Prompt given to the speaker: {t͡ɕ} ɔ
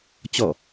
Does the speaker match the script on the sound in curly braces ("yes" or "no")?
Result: yes